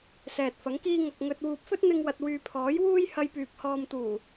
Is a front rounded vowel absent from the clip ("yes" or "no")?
no